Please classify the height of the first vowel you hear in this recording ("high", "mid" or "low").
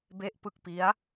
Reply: mid